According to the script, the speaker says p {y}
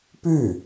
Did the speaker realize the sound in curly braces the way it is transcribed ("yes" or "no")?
yes